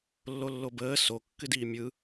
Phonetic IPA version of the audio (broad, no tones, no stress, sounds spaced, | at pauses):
lː o lː o b əː s o kː ɨ d iː mʲ ɯ